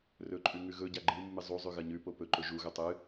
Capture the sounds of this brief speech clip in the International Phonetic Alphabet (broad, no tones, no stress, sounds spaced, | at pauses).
r ɵ ǃʼ ʉ ŋ ʉ ɣ ɵ ɟ a ɡ͡ǃ ɨ mː ɨ zˤ u zˤ ʉ ɣ ɐ ɲ ʉ p o p ɵ ǃ ɵ ʒ u ɣ ɵ tˤ ɨ